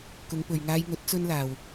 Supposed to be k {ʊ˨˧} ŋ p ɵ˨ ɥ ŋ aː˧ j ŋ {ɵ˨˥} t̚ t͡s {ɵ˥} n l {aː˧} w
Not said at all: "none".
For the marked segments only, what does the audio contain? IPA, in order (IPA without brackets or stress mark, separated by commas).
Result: ʊ˨˧, ɵ˨˥, ɵ˥, aː˧